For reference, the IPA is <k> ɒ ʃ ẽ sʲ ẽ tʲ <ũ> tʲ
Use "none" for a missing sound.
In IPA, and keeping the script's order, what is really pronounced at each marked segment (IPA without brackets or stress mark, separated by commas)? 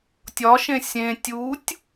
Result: tʲ, u